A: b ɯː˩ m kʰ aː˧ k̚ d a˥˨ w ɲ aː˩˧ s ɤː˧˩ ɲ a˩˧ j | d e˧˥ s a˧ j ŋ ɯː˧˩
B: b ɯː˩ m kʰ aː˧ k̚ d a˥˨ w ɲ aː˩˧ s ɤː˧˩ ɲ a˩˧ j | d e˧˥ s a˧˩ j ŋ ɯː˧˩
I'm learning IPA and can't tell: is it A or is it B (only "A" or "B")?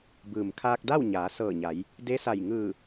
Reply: B